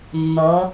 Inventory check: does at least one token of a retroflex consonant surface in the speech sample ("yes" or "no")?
no